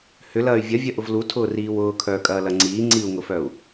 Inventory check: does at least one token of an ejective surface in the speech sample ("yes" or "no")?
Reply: yes